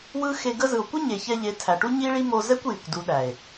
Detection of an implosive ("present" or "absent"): present